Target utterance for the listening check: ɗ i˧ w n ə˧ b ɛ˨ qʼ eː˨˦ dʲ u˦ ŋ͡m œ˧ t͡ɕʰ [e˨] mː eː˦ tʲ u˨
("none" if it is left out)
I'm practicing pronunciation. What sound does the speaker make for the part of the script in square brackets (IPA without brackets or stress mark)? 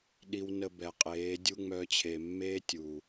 e˨